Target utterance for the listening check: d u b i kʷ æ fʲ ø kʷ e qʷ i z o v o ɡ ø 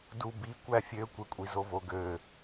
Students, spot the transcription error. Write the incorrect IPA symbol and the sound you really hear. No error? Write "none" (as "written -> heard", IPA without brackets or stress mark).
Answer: qʷ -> kʷʼ